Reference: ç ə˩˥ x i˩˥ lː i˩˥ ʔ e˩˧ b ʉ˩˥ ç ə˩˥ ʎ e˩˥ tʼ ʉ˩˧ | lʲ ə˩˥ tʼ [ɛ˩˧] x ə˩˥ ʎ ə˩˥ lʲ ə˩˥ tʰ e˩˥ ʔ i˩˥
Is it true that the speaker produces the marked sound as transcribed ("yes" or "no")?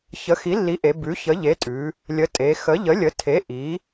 no